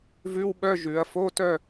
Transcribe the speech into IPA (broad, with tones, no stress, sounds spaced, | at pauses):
v ʉ˧˥˧ w ɓ œ˧˥˧ ʒ ʉ˩˧ ɐ̯ f o˧˥˧ t œ˥˧